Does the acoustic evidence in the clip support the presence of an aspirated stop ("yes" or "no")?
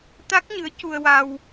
no